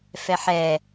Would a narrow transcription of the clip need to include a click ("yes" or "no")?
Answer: no